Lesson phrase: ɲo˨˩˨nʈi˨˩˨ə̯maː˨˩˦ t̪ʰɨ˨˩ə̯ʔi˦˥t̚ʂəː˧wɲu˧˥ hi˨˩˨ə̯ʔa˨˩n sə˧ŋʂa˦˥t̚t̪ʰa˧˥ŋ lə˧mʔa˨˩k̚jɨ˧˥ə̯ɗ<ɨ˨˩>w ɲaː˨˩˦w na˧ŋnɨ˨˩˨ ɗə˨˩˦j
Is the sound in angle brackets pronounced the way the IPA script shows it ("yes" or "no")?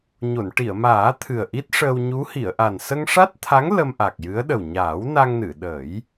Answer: no